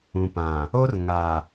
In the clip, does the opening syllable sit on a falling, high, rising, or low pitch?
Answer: low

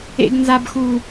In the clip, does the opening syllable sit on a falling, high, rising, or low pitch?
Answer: high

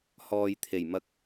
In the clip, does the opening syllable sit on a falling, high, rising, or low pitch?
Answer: low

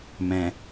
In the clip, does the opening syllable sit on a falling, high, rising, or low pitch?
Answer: low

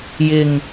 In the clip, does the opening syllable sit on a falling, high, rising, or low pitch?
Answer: low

